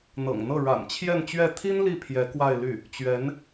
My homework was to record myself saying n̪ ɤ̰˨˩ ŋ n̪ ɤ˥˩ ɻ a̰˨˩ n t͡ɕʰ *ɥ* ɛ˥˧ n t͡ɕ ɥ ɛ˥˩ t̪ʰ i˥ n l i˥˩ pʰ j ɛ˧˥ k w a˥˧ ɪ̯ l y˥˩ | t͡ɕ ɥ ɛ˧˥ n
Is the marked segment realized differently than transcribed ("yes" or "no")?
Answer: yes